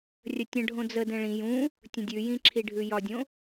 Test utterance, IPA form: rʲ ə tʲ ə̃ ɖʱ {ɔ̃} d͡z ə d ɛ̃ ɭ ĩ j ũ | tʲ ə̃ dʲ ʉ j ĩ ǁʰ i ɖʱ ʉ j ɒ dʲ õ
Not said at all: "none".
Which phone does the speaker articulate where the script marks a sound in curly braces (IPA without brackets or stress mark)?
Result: õ